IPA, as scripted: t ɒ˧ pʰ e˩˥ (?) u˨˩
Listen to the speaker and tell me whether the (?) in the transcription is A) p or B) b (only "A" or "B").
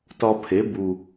B